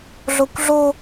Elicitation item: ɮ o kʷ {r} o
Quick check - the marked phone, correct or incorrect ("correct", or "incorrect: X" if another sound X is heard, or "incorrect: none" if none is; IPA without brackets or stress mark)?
incorrect: ɮ